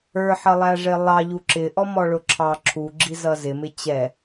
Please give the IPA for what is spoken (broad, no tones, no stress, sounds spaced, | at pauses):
ə˞ ħ ʌ lˠ æ ʐ ɪ lˠ ɑ ʎ u ǁ ɪ ʔ ɔ m ɔ ɭ ʊ ǁʰ ɑ ǁʰ u ɡ͡ǁ i z ʌ z ɪ m ɪ t͡ɕ ɛ